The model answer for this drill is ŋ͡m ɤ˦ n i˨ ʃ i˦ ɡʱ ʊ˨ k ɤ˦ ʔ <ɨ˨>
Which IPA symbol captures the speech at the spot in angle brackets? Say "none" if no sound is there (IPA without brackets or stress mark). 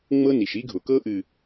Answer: ɨ˨